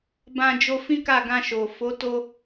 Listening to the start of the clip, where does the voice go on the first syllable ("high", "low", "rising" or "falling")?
high